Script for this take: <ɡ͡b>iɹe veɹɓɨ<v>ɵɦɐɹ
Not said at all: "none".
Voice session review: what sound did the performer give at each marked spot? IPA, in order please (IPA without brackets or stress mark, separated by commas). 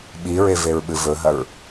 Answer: ɓ, v